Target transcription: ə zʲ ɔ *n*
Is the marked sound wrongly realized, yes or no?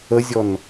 no